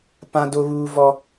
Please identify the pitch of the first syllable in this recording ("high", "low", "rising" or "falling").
high